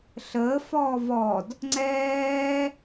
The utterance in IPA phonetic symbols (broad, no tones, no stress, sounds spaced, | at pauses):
ɬ əː f ɔː v ɔ d | ŋ͡ǀ ɛː